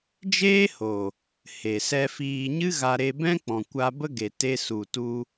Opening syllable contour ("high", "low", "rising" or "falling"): high